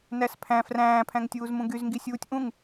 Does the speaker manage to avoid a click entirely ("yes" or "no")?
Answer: yes